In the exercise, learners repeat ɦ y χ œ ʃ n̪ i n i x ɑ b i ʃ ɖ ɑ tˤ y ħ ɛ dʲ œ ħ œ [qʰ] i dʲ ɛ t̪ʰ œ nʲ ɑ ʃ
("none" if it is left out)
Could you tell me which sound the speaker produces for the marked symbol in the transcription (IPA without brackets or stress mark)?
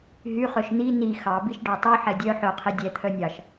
qʰ